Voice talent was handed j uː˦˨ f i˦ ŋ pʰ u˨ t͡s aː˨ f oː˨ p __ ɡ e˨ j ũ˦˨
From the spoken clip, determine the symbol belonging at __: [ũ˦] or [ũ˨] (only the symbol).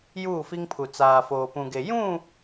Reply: ũ˨